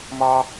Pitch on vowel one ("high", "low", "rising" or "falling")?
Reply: high